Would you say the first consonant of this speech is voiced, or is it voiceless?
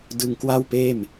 voiced